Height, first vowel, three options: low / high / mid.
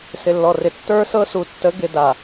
high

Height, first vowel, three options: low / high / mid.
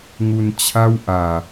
high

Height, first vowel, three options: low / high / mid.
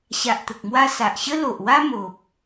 low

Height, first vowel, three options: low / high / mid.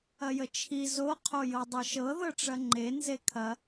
low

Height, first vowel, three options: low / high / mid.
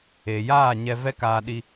mid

